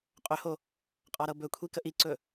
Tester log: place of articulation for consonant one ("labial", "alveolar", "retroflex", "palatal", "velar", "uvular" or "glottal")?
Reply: uvular